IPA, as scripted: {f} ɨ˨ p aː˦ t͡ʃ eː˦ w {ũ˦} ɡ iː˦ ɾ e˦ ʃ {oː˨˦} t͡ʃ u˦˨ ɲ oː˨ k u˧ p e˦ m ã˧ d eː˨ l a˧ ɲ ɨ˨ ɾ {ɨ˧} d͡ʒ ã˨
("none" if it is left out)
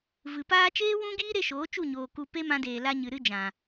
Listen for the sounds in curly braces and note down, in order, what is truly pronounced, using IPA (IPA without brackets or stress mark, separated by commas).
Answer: v, ũ˦, oː˨˦, ɨ˧